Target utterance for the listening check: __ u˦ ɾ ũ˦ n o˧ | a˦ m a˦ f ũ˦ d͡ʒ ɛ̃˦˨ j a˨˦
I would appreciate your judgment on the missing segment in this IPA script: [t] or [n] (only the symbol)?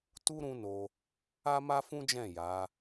t